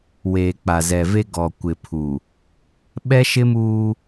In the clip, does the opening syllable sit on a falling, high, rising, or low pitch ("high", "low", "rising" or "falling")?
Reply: low